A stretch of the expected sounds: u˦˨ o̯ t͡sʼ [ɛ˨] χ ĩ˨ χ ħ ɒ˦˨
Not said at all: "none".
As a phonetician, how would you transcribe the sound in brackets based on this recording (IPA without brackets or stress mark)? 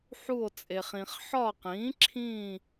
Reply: e˨